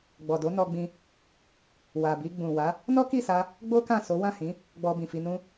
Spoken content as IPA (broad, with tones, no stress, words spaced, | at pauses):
ɡ͡bɔ˨do˨˦nɔ˧ɡ͡bĩ˧ | wa˨bi˧ ɡ͡bũ˨wa˨˦ | nɔ˦ki˦˨sa˧ | ɡ͡bo˦kã˦˨ so˨˦ wã˦˨hĩ˨˦ | ɡ͡bɔ˧bĩ˨fi˧nũ˦